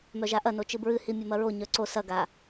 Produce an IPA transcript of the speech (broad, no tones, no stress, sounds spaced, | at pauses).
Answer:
m œ ʒ a ʔ ɐ n o t͡ʃ ɨ b ɹ ɨ h i mʲ ɐ m ɐ ɹ o ɲ œ ǀ o s ɐ ɡ a